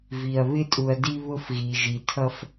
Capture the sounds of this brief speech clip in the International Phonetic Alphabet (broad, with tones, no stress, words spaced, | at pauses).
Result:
vi˨ɐ̯ βɪ˦tʼu˨ɐ̯ di˦βʊ˦f ɣi˨ʒi˨tʰʌ˦f